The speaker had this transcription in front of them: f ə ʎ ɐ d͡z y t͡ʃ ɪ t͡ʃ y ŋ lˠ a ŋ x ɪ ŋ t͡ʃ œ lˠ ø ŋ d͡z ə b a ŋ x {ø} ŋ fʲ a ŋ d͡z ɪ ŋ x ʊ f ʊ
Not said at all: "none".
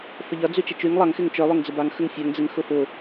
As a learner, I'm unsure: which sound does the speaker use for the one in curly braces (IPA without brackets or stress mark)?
ə